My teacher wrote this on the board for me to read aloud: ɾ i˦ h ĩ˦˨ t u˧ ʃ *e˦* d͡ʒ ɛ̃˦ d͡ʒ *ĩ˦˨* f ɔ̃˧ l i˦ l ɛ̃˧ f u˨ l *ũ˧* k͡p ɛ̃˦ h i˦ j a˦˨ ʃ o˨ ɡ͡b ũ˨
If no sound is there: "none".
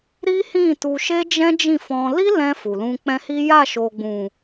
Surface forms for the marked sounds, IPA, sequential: e˦, ĩ˦˨, ũ˧

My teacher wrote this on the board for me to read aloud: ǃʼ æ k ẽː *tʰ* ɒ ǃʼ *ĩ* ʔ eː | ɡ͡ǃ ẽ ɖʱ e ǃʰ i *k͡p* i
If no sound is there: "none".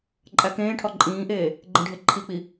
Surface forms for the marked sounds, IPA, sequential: ʈʰ, ĩː, k͡p

